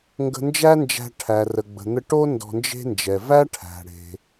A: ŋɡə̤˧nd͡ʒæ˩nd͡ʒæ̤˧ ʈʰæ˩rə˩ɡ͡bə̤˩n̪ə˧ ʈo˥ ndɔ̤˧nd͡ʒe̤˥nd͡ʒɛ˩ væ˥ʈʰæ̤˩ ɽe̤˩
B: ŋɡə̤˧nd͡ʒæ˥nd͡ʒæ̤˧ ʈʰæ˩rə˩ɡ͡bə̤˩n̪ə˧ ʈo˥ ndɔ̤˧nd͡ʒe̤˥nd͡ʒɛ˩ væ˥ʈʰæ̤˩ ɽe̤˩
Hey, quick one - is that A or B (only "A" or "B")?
B